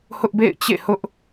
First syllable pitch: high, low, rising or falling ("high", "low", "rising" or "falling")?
high